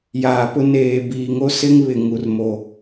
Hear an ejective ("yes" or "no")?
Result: no